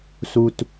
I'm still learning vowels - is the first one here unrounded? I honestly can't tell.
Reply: no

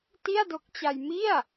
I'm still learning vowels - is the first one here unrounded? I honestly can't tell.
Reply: yes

